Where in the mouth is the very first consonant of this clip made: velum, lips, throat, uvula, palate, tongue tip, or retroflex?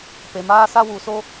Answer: lips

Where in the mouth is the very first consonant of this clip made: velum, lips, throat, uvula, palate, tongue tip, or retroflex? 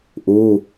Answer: throat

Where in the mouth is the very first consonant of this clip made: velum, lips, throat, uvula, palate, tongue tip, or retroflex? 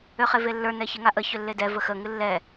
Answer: uvula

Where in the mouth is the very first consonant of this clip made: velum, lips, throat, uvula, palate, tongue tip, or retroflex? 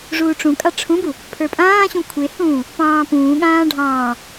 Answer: retroflex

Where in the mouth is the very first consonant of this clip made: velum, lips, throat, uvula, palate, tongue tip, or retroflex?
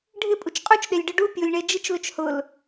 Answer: retroflex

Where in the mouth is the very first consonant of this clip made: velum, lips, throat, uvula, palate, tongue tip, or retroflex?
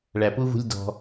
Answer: retroflex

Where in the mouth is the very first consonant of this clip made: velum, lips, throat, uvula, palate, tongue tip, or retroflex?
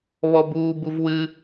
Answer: lips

